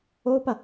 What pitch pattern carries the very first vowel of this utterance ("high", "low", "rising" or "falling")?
high